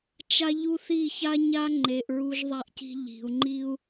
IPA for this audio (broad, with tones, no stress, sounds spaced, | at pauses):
t͡ʃ a˦ ʎ u˦ θ i˦˨ ç a˦ ɲ a˦ ŋ͡ǃ e˨ ʔ ɹ u˦ ʒ ðˤ a˦ ʔ c i̤˦ ʎ i̤˨ u̯ ŋ͡ǃ i˦ u̯